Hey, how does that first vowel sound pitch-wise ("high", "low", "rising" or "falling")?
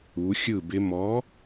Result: rising